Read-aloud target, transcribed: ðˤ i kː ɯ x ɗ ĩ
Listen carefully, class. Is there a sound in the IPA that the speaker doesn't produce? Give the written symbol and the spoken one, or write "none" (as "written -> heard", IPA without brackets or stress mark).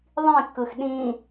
i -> ĩ